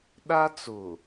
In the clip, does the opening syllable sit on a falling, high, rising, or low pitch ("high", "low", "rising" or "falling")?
high